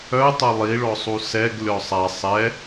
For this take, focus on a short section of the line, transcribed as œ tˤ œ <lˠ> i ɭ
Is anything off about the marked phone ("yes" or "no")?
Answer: no